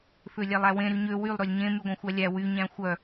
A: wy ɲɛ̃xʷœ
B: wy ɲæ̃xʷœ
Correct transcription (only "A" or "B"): B